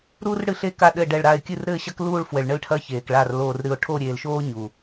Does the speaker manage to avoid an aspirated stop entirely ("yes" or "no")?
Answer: no